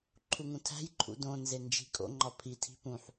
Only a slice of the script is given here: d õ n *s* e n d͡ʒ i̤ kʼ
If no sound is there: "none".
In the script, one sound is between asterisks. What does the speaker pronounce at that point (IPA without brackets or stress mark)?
z